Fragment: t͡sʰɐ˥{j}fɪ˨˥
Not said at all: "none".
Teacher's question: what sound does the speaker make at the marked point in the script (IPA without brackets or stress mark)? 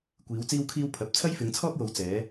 j